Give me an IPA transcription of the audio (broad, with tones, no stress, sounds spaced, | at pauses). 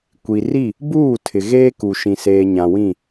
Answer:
kʷ i˨ r i˦˨ | b uː˦˨ tʰ ɪ˨ ɣ eː˦ k u˨ ʃ ĩ˨ s eː˨ ɲ ã˨ w ĩ˦˨